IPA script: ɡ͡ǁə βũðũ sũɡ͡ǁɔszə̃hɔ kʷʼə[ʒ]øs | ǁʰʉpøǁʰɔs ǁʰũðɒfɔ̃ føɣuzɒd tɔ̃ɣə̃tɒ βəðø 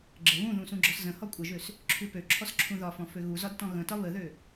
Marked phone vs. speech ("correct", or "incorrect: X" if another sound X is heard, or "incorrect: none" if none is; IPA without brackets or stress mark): correct